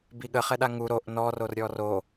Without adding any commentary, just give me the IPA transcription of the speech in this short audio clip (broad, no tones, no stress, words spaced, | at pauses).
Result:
biɠə χɛɗaŋu ɾoʔ nɔ rorɾʲɔro